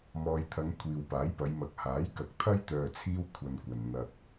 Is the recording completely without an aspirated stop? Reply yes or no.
no